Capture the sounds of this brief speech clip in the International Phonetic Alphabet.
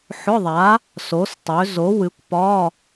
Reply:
ħ ʊ˧˥˧ ðˤ a˨˥ | s o˨˥ s tˤ ø˨˥ z o˨˥ w ɨ˨˥ kʷ p ɒ˧˥˧

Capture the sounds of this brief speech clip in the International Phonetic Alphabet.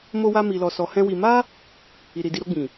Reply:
m o˦ w a˦ m i˧ l ɔ˧ s ɔ˧ h ɛ̃˦ w i˧ m a˦ | i˧ ɾ i˧ d i˦ ɾ o˧ ɡ͡b ĩ˨

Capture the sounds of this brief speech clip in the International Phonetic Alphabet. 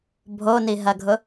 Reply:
bʱ o n i ɦ ɐ ɡʱ ʊ

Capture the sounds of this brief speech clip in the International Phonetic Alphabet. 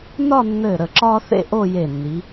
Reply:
n ɒ˥˧ nː ɘː˧˩ ɾ ə˧˩ ǁ ɒː˥ θ ḛ˥˧ ʔ o˥˧ j e˧˩ nː i˩˧

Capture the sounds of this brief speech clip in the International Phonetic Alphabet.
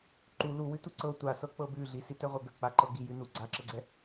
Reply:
ǃ u l u w ʉ t u ǀ ɤ tʷ a s ɤ k͡p ɤ b ʉ ɮ i s i t ɛ ʁʷ ɤ ɡ ə k͡p a ǃ ɤ ɡ i j ʉ n u ɡ͡ǀ a ǁ ə ɡ͡ǀ ɛ

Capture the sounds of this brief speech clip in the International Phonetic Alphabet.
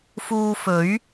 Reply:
f uː˧ f ɵ˨˥ ɥ

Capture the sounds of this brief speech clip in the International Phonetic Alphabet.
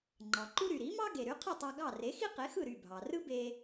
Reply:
ŋ͡ǃ ɑ˩ ǃ u˥ ɾ y˩ ɾ i˩˥ m ɑ˥ ɡ e˩ ɾ y˩˥ qʰ ɯ˥˩ tˤ ɑ˧ ɡ ɑ˥˩ r e˩˥ x i˥ q e˩˥ x ɯ˥˩ ɾ y˥˩ bʱ ɑ˩ r ɯ˥ b e˧

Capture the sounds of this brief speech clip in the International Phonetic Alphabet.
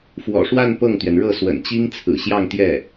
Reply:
f w ɔ̰˨˩ ʂ w a˥˧ n p ɤ˥˩ ŋ t̪ ɥ ɛ˩ n ɻ ɤ˥˩ s w ə̰˨˩ n t͡ɕ i˥ ŋ t͡sʰ ɹ̩˨˩ ɕ j ɑ˥˧ ŋ t̪ j ɛ˥˩

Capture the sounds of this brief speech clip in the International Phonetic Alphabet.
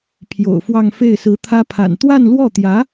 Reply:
pʰ j o̰˨˩ ʊ̯ f w ɑ˥˧ ŋ f e˥˩ ɪ̯ s ɹ̩˧˥ t̪ʰ ä˥ pʰ a̰˨˩ n t̪ w a˥˧ n l w ɔ˥˩ t̪ j ä˧˥

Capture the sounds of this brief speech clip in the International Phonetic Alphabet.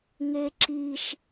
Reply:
ŋ e ǁ i ʃ

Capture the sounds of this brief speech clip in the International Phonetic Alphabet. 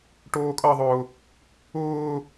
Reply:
ʈ oː kʼ ʌ ðˤ ʊː | ʊː

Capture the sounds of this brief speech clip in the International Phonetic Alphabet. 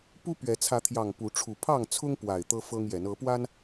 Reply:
p u˦ p ɥ ɛ˨˦ t͡sʰ ä˨˦ t̪ʰ j ɑ˨˩ ŋ p u˨˦ ʈ͡ʂʰ u˨˦ pʰ ɑ˥˨ ŋ t͡sʰ ʊ˦ ŋ p w a˨˩ ɪ̯ t̪ ɤ˦ f ɤ˦ ŋ j ɛ˨˦ n ɤ˨˦ p w a˦ n

